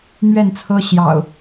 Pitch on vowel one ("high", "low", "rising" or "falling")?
falling